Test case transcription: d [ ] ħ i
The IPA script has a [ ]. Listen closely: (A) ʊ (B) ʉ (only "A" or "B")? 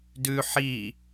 B